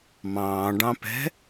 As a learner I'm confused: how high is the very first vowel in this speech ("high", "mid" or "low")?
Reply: low